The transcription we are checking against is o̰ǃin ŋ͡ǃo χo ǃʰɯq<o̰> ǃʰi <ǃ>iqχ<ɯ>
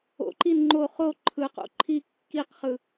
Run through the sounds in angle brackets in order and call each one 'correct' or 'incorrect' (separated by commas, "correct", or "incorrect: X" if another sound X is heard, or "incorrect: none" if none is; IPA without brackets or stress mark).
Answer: correct, incorrect: kː, correct